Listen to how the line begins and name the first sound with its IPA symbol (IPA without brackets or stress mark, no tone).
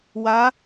w